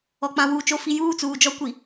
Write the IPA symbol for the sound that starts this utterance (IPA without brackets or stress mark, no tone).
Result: ɔ